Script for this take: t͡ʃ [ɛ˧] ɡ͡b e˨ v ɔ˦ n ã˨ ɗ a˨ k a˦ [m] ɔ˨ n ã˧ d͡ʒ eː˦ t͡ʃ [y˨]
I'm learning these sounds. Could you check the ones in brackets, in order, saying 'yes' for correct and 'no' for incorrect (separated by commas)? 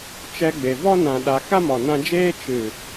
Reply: yes, yes, no